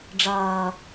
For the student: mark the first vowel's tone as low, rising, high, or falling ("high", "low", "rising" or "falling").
low